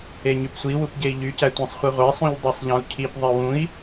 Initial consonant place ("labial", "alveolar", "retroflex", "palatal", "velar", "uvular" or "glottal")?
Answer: palatal